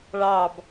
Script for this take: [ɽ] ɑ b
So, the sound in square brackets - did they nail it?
no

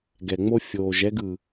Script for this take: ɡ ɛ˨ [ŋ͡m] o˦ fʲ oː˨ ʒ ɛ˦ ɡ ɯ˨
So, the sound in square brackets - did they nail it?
yes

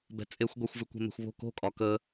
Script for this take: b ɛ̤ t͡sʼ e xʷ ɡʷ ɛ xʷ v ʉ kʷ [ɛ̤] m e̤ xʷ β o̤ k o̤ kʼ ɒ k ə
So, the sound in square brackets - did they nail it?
yes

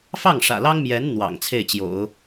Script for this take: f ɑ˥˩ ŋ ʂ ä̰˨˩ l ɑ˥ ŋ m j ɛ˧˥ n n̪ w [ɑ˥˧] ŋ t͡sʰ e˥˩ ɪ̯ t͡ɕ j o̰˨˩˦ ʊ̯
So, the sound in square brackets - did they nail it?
no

